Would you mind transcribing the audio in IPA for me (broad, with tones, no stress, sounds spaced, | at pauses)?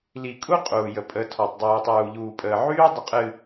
l i˨ kʼ u˦ qʼ uː˨ j ə˨ pʼ ə˨˦ tʰ ɔ˨ tˤ dˤ uː˨ tˤ uː˨ ʎ uː˨ pʼ əː˨ ʕ yː˦ dˤ ə˨ qʼ ɨ˨